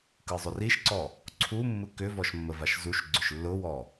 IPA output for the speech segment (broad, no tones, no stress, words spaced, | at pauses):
kɯzˤʏriʃǀɔ | ǀʰumːɯ kʏvɔʃ mːəvaʃzuʃɡ͡ǀʏʃ lːʊwɔ